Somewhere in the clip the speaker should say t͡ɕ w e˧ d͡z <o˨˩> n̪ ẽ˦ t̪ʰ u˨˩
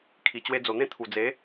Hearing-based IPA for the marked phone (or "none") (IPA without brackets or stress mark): o˨˩